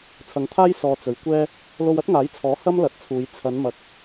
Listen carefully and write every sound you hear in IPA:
t͡sʰ ɐ˨˧ ŋ t̪ʰ aː˥ j s ɔː˨ t͡s ɵ˨˧ ɥ kʷ ɛː˥ | l o˧ w ɐ˥ t̚ ŋ aː˨˥ j t͡sʰ ɔː˨˥ h ɐ˥ m l ɐ˨˥ t̚ t͡sʰ uː˨˧ j t͡sʰ ɐ˨˧ n m ɐ˨ k̚

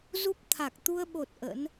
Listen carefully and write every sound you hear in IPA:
z u˦˥ p̚ t̪ʰ a˨˩ k̚ t̪ u˧ ə̯ ɓ o˨˩ t̚ ʔ ə̰˧˥ n

